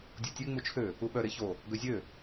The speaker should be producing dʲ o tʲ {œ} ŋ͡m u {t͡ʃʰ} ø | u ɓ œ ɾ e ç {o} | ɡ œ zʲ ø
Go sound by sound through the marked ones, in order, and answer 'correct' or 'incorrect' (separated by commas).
incorrect, correct, correct